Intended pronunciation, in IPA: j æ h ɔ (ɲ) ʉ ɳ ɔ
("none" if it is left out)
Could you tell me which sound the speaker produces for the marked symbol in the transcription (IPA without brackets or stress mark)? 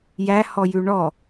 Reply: j